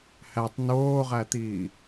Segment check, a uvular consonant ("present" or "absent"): present